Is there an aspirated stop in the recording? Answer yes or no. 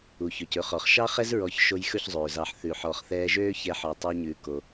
no